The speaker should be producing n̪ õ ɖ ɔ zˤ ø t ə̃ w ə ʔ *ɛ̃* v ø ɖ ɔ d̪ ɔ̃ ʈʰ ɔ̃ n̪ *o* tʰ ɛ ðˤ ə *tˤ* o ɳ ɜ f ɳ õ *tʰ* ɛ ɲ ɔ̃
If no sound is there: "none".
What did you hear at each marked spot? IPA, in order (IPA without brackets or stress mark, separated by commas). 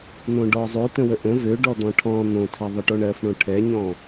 ə̃, õ, ʈ, ʈʰ